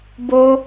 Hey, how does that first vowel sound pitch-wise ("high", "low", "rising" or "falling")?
high